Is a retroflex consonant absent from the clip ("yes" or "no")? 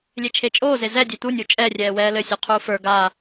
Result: yes